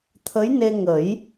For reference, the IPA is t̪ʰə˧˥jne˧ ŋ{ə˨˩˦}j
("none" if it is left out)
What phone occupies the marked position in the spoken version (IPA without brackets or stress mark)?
ə˨˩˦